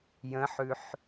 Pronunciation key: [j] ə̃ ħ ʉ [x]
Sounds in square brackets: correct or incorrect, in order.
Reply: correct, incorrect

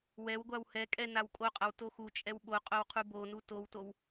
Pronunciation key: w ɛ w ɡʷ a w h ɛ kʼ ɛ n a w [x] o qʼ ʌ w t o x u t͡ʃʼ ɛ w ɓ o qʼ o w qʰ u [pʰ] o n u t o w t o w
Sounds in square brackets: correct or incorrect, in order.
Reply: incorrect, incorrect

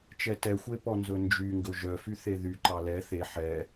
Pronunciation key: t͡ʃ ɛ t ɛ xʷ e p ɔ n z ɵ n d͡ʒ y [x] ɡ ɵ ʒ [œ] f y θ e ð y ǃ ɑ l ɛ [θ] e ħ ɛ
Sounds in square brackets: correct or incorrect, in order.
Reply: incorrect, correct, correct

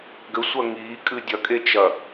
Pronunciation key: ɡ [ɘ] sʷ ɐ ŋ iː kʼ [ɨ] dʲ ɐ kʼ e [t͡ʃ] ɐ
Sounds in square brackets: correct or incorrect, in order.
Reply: correct, correct, correct

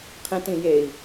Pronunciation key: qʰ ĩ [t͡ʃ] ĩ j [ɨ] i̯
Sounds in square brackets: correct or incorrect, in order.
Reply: incorrect, incorrect

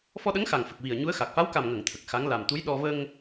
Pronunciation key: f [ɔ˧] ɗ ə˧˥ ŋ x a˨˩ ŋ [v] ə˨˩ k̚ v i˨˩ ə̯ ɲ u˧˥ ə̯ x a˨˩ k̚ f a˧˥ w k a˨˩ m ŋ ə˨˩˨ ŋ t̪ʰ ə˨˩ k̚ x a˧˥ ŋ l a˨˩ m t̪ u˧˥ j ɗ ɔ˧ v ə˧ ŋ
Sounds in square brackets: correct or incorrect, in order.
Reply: correct, incorrect

